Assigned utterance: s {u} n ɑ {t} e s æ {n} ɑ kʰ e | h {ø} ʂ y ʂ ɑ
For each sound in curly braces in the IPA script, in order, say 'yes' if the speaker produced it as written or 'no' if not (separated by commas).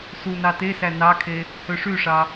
yes, yes, yes, yes